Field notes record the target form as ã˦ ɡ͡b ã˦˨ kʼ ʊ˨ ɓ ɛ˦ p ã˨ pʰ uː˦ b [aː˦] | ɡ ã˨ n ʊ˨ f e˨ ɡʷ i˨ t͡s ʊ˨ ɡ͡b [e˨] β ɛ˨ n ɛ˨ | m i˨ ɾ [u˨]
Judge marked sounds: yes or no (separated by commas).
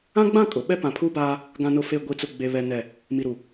yes, yes, yes